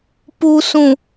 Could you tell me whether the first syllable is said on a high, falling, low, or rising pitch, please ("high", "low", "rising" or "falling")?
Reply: low